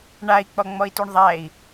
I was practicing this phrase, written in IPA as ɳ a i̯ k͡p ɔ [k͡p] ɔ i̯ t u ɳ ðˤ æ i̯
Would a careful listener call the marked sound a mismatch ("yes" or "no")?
yes